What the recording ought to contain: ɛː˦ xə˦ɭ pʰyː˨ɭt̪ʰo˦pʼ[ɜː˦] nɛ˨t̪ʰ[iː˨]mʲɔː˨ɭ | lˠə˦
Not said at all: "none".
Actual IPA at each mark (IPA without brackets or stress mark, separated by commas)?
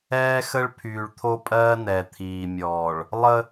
ɜː˦, iː˨